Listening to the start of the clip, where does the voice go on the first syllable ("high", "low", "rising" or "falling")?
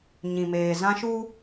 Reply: low